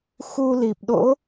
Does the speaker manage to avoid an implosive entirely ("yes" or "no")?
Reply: no